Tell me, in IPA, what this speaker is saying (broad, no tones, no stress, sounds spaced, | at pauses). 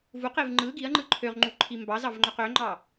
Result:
v u q e v ŋ͡ǃ ɯ ɡ i ɐ̯ ŋ͡ǃ ɯ ǃʰ ø ʁ ŋ͡ǃ u ǃʰ i m b ɑ z ɑ v ŋ͡ǃ ø q ø ŋ͡ǃ ɑ